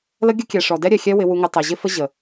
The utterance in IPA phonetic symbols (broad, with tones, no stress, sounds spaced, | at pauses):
l ə˦ ɡʲ ə˦ kʲ ɛ˨ ʂ ɔ˨ d ɛ˦ ɾʲ ɛ˨ xʲ ɛ˦ w ɪ˦ w u˦ ŋ ɪ˦ tˤ ɛ˨ ʑ ɪ˦ f ə˦ ʑ ə˨